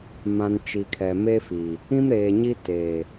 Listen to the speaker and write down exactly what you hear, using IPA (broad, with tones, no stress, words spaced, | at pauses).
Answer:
mã˨n t͡ʃi˨kʰɛ˨ me˦fi˨ | ĩ˦mɾeː˨ɲi˦ te˨